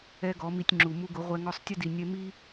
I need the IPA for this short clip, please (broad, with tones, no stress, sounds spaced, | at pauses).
ɛ˦ ɡ ɔ˨˦ m i˧ tʲ ŋ͡ǁ u˨ m u˧ ɡ ʊ˨˦ ʁʷ ɛ˧ ŋ ɔ˧ sˤ tʲ ʊ˦ d i˨ nʲ ɛ˧ m i˦